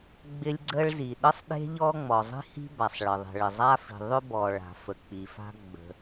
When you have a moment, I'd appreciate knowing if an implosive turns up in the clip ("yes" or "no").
yes